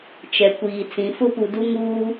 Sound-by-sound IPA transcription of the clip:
t͡ʃ ɛ˨ kʷ iː˨ t͡s ĩ˨ f ʊ˦ p u˨ d u˦ ŋ uː˦

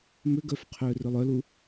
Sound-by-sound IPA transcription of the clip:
m ʏ ɡ œ f qʰ øː r ʏ lˠ œ l u

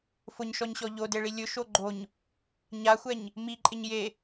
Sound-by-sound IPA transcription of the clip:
f ʊ ɲ ʃ ɔ ɲ ɕ ɔ ʎ o d e ɭ i lʲ ʊ ʃ o ɡ͡ǃ o ɲ | ɲ a xʷ ɛ ɲ | m i ǃʼ ɪ ɲ j e

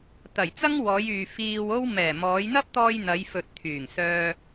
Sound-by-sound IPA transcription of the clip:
t̪ ɐ˨˩ j t͡s ɐ˥ ŋ w ɔː˨˧ j yː˨ f iː˧ w o˥ w m ɛː˨˩ m ɔː˨˧ j n̪ ɐ˥ p̚ t̪ ɔː˧ j n̪ ɐ˨˧ j f ɵ˨ t̚ t̪ʰ yː˨˩ ŋ s œː˧

